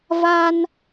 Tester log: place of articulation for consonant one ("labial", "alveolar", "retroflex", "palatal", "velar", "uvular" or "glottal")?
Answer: labial